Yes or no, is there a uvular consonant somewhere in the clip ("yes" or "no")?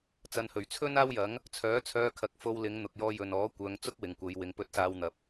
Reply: no